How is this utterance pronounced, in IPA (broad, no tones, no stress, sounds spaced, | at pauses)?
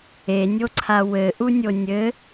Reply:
e nʲ o ǀʰ a w ɘ ʔ u nʲ o nʲ ɘ